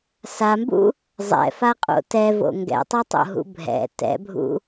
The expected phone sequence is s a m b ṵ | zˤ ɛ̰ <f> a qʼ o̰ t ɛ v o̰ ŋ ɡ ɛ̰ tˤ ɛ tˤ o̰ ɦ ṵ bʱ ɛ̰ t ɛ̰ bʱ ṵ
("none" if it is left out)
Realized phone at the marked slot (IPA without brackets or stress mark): f